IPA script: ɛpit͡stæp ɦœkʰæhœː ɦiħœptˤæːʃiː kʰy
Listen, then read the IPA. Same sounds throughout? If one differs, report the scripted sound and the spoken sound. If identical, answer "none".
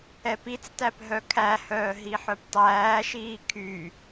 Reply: none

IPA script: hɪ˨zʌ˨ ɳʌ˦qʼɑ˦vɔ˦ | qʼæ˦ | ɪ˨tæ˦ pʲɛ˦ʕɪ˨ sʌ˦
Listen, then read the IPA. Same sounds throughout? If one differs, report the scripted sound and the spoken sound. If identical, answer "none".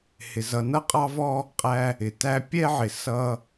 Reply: ɳ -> n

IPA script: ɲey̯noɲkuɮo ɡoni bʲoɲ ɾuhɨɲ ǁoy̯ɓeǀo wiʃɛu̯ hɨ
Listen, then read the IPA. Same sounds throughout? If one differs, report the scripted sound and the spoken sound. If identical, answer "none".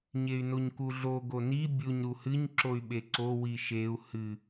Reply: ɛ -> e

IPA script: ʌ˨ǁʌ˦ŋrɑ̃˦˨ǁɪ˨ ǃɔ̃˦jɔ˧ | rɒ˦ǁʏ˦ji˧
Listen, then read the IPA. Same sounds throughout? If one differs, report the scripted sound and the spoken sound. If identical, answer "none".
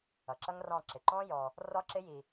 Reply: ʏ˦ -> ɪ˦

